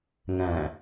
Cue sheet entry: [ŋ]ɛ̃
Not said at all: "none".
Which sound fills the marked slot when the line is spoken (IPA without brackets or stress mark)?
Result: ŋ